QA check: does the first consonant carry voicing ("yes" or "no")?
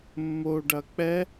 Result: yes